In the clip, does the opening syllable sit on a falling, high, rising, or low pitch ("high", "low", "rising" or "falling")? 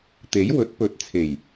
rising